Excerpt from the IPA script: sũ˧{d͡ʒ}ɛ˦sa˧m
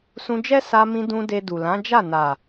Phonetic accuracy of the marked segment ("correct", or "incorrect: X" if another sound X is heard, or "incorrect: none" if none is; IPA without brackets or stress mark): correct